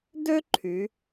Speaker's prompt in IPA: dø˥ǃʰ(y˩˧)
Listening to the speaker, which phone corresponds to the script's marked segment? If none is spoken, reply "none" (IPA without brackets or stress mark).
y˩˧